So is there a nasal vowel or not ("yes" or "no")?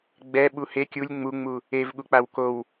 no